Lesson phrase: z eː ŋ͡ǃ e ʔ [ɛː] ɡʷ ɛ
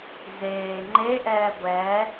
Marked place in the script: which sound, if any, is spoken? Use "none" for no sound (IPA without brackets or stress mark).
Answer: ɛː